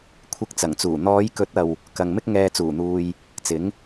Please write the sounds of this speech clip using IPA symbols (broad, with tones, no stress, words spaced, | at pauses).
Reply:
kʷʰɪ˧k̚t͡sɐ˨˩ŋt͡suː˨˩ n̪ɔː˨˧jkɵ˨˥t̚ɐ˨w | kɐ˨ŋmɪ˥k̚ ŋɛː˧t͡suː˨˩n̪uː˧j | t͡sɪ˨˥ŋ